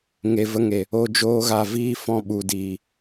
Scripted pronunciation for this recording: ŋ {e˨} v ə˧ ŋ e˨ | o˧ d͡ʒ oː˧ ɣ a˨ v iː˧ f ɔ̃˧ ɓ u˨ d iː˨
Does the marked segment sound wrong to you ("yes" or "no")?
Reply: no